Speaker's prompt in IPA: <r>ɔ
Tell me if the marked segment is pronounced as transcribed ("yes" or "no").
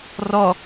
yes